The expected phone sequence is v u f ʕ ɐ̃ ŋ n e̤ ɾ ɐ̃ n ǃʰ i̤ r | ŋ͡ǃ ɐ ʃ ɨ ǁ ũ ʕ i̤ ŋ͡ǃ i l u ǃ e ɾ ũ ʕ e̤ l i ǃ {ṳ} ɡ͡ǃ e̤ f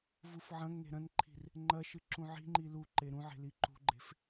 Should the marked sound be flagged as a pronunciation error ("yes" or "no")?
no